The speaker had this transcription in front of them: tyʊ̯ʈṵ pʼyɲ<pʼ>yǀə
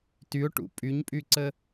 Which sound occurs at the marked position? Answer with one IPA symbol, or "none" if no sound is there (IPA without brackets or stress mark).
pʼ